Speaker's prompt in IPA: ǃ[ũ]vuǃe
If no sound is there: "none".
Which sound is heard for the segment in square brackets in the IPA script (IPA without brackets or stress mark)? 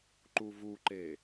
u